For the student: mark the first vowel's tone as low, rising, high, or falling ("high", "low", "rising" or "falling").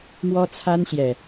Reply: high